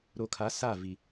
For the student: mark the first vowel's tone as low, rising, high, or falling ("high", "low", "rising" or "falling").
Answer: low